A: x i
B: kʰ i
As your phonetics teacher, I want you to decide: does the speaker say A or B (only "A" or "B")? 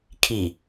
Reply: B